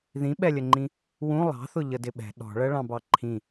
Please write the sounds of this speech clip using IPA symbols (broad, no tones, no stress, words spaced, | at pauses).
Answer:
ðĩɓɛlʲəŋ͡ǃĩ | wũ lˠɑ̤θʊ ʎədɪɓɛ̤ ɗɔ̤ɭɜ ɭɑ̃bɑǃʰĩ